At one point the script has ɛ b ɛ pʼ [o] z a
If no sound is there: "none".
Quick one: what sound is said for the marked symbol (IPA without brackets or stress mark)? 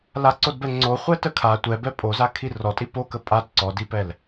o